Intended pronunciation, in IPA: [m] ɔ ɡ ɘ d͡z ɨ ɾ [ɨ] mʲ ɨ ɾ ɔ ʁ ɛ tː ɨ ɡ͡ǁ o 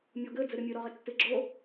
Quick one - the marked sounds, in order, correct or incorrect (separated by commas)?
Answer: incorrect, correct